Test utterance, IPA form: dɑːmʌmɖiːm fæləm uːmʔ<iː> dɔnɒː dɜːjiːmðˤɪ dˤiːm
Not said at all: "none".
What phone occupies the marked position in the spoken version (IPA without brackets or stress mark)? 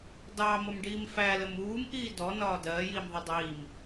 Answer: iː